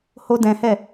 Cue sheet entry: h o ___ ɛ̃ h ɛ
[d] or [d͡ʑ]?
d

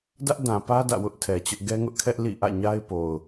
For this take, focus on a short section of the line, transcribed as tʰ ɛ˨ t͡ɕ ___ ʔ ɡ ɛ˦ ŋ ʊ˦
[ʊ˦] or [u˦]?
ʊ˦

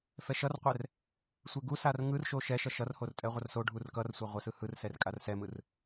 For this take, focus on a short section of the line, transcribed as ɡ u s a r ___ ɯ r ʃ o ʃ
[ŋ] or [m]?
ŋ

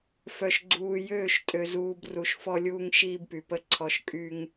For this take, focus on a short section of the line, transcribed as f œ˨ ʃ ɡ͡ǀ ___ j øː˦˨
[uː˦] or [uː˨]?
uː˨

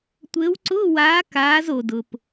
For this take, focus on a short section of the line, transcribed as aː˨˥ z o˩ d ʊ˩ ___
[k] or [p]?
p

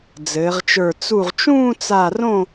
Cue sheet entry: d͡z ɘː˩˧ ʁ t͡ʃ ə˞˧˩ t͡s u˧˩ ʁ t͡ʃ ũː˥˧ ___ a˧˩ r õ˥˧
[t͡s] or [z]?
t͡s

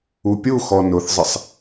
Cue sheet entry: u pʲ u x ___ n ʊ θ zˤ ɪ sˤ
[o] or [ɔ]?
ɔ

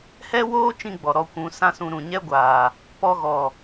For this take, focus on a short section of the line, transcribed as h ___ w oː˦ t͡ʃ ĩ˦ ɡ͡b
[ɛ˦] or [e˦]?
ɛ˦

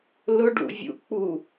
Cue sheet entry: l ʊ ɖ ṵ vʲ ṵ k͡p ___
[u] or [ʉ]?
u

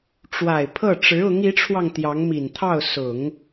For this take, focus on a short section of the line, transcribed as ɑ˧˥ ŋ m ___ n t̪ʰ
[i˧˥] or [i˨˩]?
i˨˩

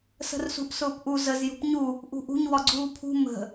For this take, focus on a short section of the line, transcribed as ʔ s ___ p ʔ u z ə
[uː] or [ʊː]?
ʊː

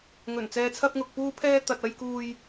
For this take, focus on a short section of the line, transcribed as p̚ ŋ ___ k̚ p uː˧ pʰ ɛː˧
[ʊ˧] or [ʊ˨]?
ʊ˨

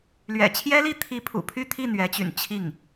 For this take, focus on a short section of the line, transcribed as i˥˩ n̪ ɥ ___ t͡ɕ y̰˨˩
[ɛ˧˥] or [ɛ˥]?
ɛ˧˥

